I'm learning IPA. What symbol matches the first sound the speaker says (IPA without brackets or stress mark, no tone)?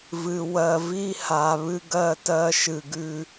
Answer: v